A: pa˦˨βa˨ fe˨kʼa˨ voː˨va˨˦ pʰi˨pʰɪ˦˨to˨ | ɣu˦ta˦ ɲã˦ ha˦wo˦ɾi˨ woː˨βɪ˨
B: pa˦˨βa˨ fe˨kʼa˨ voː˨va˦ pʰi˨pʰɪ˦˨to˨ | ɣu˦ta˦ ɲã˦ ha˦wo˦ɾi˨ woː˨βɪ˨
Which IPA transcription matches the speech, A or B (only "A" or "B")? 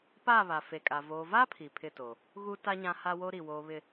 B